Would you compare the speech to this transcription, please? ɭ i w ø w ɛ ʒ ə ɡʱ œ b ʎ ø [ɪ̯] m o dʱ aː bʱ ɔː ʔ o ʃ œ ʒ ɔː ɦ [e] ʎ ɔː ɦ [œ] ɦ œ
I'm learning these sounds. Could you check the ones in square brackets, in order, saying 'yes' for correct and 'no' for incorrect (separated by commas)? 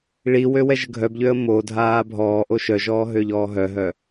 no, no, yes